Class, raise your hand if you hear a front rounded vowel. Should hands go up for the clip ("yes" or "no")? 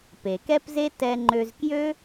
yes